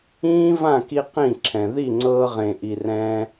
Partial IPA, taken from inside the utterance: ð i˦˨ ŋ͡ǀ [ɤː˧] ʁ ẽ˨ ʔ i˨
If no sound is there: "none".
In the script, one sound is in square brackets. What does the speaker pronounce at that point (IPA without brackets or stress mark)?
ɤː˧